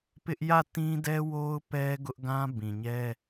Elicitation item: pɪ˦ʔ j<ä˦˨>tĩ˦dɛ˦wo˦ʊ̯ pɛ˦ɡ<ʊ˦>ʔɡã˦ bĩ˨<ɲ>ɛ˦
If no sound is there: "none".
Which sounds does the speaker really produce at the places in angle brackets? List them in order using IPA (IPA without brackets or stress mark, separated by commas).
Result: ä˦˨, ʊ˦, ɲ